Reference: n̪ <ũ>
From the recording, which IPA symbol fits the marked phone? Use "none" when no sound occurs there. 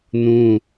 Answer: ũ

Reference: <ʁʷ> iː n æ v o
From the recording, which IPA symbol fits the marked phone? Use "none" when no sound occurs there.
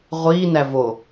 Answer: ʁʷ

